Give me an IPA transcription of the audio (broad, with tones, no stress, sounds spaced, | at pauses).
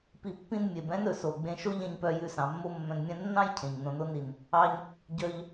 p i˧ pː ĩ˥ n mʲ e˩ b ɛ̃˥ n ɵ˩ s o˩ ɡ͡b ẽ˧ ʃ o˥ ʎ ɛ̃˧ ɲ p œ˧ j ʉ˧ s ɑ̃˩ mː o˥ mː œ̃˧ n mʲ ɛ̃˥ nː ɑ̃˥ j cʰ ẽ˩ ɲ n õ˧ n o˥ n i˩ n | ɑ˧ ɲ | ɟ œ˧ ʎ